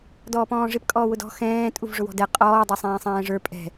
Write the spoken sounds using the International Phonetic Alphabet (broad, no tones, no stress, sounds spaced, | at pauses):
d ɔː p ɔ̃ː ʐ ɪ p kʼ ɔː w ʊ d ɔ̤ x ɛ̃ː tʼ u v ʐ ʊ w ɔ̤ d ɛ qʼ ɔː dˤ ɛ sˤ ɛ̃ː sˤ ɛ̃ː ʐ ə˞ pʼ ɛ̤